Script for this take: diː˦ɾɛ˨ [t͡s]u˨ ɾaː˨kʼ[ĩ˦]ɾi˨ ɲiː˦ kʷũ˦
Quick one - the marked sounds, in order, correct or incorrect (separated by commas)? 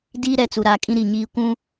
correct, correct